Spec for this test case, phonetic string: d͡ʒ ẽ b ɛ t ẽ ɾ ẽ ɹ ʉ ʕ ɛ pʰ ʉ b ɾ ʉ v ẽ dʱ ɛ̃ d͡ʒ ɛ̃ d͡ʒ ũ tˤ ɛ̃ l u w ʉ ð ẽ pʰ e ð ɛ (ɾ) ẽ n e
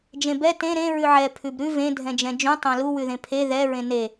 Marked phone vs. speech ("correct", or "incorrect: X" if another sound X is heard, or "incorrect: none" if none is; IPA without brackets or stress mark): incorrect: ɹ